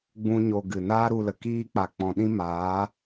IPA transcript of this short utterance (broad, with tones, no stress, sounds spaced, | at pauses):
ɡ͡b ũ˦ ɲ o˧ ɡ ɨ˨ n aː˦ ɾ u˧ l ə˨ k iː˦ k͡p a˨ k͡p ɔ̃˨ ɗ ĩ˦ m aː˨˦